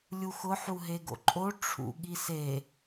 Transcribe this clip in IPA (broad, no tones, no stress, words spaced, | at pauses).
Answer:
lʲuxʊ ħuɦeɡo̰ǃʼo ʈ͡ʂʰṵ ɠise